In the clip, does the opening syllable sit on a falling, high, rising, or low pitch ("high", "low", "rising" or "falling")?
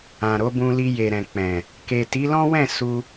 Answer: low